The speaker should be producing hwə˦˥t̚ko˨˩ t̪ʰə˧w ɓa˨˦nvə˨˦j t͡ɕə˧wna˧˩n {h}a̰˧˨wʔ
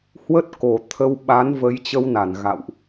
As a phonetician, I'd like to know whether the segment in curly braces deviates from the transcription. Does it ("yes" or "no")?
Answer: yes